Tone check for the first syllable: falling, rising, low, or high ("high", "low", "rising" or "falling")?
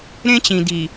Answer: high